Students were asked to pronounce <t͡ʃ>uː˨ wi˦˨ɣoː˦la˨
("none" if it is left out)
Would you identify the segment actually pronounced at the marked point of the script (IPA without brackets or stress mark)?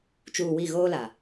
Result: t͡ʃ